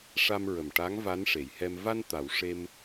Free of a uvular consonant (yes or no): yes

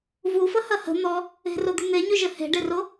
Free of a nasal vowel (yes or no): yes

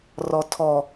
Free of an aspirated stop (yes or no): no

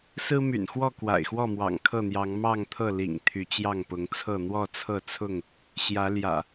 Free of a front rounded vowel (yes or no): no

